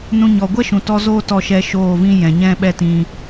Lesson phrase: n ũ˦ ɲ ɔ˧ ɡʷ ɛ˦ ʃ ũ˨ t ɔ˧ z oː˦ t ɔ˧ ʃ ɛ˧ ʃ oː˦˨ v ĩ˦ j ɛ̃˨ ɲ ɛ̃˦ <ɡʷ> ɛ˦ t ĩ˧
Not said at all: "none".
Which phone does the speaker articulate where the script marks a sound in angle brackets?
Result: ɓ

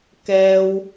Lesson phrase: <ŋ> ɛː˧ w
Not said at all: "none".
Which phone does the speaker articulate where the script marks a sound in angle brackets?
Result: k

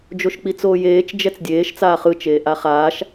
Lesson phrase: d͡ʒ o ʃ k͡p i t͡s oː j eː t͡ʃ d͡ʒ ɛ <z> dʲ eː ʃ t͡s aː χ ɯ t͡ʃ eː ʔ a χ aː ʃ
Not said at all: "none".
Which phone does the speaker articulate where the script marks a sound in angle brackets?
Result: t͡s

